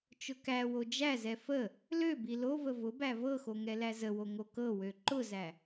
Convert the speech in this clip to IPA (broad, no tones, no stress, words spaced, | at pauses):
t͡ʃʊkæwo d͡ʒæzɛ fə | lø bilovə vʊ bævɤxo ŋɛlæzəwo ŋokɤwø ǃʊzæ